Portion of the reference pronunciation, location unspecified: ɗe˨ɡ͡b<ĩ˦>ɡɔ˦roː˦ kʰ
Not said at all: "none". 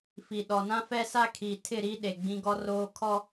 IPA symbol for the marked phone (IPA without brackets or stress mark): ĩ˦